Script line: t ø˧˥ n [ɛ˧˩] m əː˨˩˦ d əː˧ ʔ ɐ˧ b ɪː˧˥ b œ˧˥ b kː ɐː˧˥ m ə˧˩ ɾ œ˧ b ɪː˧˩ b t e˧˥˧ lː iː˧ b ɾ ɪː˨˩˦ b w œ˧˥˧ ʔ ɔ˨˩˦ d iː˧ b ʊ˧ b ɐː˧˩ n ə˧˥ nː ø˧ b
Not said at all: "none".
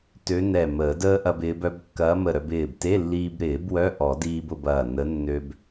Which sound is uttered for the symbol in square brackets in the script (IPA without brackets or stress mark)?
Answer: ɛ˧˩